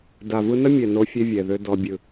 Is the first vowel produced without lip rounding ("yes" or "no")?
yes